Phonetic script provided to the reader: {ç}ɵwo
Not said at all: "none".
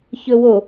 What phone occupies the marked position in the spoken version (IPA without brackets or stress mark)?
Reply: ç